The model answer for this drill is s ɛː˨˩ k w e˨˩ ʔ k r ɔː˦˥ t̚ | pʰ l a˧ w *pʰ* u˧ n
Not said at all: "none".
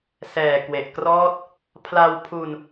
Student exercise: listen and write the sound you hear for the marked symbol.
pʰ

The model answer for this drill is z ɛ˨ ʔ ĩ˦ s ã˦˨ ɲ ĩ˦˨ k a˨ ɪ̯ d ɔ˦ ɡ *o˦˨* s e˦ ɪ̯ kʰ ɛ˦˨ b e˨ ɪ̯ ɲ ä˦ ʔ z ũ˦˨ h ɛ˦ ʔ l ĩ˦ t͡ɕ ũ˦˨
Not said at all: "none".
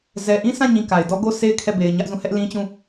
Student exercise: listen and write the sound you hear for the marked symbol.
o˦˨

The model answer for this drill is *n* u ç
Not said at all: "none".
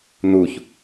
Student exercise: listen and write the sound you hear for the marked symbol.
n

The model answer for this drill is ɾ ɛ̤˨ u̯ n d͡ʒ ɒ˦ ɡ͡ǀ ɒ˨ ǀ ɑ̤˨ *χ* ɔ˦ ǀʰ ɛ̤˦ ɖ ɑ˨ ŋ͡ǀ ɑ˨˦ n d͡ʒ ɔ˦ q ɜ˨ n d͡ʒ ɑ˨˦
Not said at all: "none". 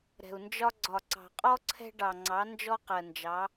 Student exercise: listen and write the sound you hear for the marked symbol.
qʼ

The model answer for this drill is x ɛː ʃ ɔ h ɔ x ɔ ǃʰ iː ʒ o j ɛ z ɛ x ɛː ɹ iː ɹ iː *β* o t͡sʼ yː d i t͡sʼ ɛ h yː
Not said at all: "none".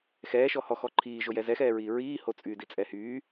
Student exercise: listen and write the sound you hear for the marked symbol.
h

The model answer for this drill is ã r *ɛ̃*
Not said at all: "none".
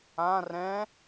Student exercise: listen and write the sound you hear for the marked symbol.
ɛ̃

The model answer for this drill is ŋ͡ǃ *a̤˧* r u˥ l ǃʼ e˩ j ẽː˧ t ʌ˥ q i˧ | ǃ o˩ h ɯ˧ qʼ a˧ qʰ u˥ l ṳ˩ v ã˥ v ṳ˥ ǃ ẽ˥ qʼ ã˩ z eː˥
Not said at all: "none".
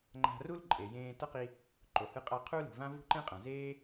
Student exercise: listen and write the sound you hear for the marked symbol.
a̤˧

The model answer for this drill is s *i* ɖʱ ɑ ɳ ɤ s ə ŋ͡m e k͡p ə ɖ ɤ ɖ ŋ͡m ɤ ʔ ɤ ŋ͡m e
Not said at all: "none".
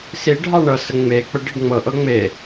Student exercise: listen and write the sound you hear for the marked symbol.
i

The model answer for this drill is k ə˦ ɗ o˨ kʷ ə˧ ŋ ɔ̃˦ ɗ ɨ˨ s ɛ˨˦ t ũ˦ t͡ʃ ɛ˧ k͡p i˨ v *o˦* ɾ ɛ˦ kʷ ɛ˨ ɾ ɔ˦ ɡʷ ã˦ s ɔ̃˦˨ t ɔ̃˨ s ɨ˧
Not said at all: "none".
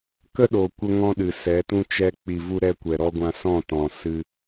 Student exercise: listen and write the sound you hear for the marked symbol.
u˦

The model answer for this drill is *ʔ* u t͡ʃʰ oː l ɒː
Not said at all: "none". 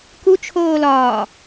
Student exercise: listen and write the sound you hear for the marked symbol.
k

